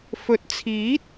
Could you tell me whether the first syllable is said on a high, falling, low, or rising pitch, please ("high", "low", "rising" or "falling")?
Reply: low